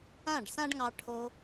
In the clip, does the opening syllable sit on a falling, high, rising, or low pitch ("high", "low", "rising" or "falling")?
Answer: falling